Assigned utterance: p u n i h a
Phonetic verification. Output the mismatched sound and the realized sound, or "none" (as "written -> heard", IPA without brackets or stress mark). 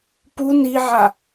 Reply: h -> ʕ